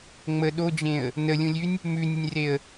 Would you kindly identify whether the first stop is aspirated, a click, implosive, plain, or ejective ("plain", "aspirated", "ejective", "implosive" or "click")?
implosive